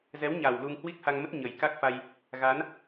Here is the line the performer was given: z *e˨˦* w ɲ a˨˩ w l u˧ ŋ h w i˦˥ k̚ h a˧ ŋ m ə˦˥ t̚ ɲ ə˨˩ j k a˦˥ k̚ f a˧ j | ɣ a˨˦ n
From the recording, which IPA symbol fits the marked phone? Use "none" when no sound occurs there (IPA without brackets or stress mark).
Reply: ɛ˨˦